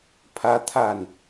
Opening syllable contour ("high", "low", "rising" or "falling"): high